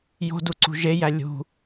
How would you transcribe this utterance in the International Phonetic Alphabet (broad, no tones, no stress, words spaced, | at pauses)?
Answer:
jo̤duǀṳ ʒejæ lʲṳ